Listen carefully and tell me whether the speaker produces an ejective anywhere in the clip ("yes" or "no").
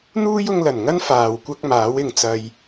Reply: no